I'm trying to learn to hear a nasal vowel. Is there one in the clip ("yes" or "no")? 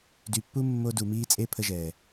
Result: no